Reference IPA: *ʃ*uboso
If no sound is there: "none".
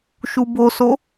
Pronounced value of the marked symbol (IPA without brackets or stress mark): ʃ